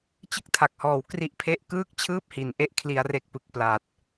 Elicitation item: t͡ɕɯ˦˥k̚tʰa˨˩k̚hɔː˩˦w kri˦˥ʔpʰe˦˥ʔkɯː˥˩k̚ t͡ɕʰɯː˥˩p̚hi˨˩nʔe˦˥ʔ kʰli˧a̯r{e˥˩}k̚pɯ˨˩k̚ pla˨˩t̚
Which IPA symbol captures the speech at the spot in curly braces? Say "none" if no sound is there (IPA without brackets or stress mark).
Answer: e˦˥